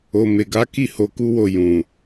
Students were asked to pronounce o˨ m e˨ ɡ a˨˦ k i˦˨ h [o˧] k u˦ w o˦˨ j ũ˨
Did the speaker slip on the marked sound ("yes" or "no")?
no